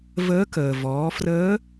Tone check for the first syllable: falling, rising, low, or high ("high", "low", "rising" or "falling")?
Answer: rising